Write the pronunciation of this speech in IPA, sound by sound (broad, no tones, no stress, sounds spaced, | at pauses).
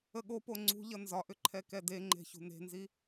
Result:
ə ɠ o p o ŋ͡ǀ ṳ ʎ ʌ n z ɒ ʔ ʏ ǃʰ ɛ k ɛ d e ŋ͡ǃ e̤ ç ṳ n e̤ n z i